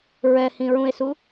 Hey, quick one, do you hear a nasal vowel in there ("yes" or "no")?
yes